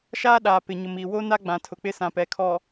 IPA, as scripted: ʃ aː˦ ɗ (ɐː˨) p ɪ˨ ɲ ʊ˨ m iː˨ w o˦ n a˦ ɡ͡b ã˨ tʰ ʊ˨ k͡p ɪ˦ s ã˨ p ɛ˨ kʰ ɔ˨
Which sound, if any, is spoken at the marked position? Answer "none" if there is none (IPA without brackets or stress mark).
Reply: aː˨